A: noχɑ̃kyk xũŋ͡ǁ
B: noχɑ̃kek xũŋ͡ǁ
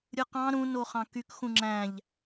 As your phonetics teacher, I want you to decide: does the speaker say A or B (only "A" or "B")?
A